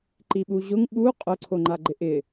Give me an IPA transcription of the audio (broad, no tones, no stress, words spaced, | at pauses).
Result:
ǃiɓuʑʊŋ ɓu qʼʊ ǀʰoŋ͡ǃaɡ͡ǃɪʔɪ